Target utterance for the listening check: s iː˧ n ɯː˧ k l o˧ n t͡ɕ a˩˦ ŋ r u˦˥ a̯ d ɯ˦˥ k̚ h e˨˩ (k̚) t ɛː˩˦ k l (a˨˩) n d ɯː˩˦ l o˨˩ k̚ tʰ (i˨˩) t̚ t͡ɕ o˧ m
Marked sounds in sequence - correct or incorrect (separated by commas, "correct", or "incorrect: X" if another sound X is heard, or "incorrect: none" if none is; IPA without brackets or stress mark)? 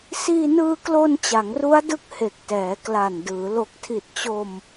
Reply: correct, correct, correct